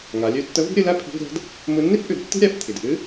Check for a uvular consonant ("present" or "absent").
absent